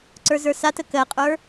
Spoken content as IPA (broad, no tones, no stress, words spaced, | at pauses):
ǀə˞zə˞satə kɜqʼə˞